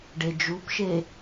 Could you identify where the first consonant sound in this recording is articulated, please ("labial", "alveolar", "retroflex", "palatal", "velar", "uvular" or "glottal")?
retroflex